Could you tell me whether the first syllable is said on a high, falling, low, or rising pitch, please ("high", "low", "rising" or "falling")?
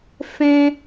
high